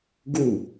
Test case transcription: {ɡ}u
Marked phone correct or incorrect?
correct